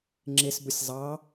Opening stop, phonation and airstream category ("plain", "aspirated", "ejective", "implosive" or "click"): click